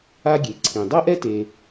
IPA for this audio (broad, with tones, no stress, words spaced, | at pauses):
a˥ɡʲe˩ǀʰĩ˩ dˤɤ˥ʔɛ˥te˨